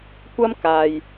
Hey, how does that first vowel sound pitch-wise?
high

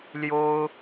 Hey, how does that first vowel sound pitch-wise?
high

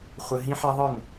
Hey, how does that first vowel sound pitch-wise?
low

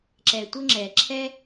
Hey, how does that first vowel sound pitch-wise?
low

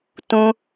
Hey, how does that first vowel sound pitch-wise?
high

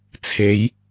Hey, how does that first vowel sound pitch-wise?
rising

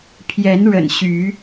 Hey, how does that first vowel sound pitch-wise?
rising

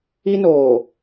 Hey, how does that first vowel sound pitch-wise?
high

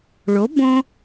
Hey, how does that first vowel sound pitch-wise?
rising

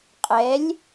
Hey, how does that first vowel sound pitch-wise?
rising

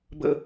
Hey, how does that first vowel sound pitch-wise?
high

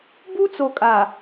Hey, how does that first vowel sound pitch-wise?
high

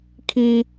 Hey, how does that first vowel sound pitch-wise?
high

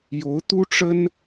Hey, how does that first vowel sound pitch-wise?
rising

